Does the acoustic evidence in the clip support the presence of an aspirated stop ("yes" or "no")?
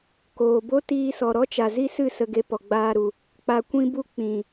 no